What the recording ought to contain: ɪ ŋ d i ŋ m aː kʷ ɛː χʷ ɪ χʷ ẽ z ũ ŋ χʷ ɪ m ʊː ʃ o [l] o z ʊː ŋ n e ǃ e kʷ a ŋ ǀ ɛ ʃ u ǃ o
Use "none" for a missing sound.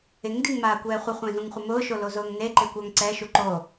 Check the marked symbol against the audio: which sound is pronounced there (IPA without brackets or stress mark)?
l